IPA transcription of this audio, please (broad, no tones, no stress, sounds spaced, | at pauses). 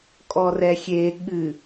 kʼ ɔ r ɛ xʲ e ɠ ɨ